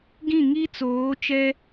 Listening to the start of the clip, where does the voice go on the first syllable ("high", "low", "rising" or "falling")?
falling